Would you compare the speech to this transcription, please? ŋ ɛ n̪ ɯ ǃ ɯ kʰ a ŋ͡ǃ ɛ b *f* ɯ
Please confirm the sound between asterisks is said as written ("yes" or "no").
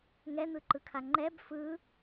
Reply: yes